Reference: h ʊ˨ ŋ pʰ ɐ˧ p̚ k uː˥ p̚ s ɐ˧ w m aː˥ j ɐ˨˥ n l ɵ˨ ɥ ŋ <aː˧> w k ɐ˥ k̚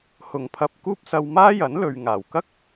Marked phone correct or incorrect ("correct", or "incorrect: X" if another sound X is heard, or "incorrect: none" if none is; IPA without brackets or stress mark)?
incorrect: aː˨˩